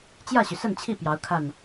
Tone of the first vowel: falling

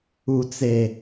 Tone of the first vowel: low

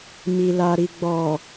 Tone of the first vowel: low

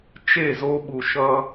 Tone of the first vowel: falling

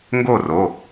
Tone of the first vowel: falling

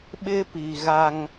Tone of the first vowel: high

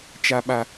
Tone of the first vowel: low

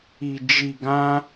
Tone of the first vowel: low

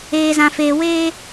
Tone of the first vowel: high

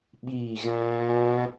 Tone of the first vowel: falling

